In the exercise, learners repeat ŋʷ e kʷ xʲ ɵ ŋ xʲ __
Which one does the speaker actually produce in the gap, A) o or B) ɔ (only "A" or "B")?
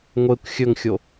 A